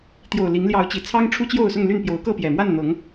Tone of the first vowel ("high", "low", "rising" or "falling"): low